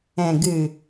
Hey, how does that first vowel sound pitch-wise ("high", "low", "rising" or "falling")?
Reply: low